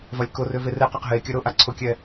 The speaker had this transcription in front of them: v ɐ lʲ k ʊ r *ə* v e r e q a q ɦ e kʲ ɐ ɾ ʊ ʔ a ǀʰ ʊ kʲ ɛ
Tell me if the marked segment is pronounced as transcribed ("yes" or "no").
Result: no